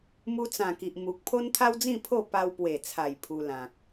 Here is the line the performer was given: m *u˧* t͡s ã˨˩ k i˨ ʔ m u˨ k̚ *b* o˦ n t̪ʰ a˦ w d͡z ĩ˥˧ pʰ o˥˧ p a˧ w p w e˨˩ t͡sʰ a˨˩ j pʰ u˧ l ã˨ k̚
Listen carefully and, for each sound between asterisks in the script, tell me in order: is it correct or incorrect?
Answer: correct, incorrect: pʰ

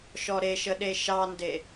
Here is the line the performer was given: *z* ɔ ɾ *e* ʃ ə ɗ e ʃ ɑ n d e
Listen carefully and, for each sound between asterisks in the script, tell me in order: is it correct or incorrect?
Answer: incorrect: ʃ, correct

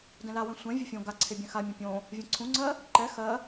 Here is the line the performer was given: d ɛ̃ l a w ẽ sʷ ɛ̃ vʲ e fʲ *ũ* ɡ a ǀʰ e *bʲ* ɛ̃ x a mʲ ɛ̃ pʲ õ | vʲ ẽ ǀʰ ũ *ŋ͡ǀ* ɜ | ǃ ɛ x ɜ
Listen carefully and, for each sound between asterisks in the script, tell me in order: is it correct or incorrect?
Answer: incorrect: õ, correct, correct

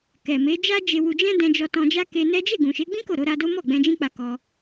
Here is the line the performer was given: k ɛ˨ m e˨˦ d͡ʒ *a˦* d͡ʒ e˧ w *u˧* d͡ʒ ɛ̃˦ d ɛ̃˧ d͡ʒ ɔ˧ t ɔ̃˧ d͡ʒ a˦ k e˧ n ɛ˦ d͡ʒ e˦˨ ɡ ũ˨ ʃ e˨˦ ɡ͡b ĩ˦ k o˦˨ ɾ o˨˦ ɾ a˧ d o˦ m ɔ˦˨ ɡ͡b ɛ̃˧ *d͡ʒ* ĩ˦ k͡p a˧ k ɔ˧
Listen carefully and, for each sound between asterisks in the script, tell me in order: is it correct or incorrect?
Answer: correct, correct, correct

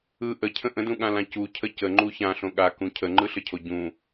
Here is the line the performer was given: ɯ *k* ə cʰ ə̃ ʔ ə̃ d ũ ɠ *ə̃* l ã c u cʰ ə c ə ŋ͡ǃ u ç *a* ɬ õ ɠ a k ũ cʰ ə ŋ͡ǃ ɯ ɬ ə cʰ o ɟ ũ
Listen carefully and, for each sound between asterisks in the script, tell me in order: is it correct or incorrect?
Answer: incorrect: ʔ, incorrect: ã, incorrect: ã

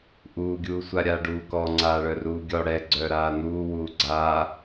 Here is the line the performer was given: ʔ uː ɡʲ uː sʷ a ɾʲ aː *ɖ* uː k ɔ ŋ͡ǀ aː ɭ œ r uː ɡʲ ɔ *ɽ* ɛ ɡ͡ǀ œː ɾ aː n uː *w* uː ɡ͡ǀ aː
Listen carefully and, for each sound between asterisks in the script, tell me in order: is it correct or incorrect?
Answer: correct, correct, correct

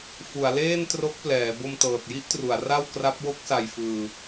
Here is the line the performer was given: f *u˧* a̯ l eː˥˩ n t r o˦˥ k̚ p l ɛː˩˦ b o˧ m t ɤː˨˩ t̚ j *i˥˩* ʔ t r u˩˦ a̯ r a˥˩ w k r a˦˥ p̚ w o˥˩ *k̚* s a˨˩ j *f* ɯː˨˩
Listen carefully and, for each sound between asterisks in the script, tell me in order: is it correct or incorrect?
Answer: incorrect: u˩˦, correct, correct, correct

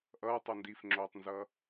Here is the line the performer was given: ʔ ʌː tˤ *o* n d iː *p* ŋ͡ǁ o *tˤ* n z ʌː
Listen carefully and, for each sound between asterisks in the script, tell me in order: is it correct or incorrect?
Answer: correct, incorrect: f, correct

